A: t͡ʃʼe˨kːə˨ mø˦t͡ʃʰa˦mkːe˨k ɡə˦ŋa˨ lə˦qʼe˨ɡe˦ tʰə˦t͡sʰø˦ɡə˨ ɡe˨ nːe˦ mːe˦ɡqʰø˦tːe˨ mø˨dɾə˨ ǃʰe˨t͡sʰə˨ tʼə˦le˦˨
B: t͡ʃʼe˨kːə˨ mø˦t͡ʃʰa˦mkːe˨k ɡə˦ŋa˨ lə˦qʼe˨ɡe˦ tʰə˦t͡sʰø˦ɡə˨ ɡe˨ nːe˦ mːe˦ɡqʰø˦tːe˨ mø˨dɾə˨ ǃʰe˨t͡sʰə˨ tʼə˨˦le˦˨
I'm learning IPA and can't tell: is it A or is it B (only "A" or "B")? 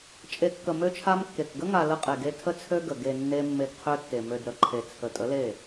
B